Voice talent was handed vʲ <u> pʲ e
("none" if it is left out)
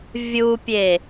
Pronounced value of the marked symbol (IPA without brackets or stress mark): u